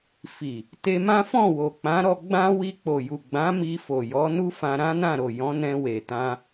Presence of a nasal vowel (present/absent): present